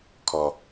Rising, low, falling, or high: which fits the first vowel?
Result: low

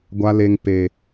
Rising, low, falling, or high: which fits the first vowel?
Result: low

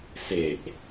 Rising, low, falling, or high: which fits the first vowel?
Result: low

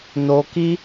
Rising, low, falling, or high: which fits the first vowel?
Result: low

